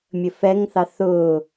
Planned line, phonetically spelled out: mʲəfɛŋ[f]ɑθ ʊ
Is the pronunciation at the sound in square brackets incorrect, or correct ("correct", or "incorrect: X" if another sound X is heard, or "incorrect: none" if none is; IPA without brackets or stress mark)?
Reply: incorrect: θ